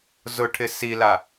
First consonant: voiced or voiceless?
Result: voiced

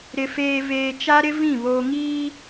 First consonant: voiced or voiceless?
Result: voiced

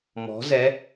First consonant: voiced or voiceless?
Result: voiced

